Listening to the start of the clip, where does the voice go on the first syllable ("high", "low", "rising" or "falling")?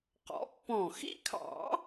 rising